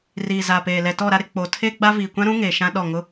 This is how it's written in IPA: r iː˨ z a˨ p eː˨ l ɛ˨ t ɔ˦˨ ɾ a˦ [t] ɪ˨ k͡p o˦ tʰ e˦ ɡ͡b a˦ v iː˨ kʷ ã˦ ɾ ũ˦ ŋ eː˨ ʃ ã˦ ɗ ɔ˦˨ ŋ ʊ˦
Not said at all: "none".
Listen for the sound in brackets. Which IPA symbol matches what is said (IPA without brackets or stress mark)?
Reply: ɾ